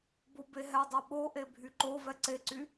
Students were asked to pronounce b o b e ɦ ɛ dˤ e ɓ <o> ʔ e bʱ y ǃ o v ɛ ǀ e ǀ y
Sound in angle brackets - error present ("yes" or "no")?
no